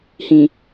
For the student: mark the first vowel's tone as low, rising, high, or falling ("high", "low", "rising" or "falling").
low